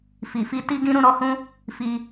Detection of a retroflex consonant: absent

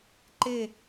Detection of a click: present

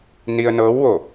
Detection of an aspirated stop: absent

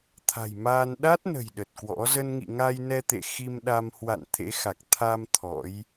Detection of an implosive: present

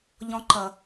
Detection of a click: present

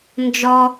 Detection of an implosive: absent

